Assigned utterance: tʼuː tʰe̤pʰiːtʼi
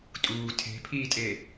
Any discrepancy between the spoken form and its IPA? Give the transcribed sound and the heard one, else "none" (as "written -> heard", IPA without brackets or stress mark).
i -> e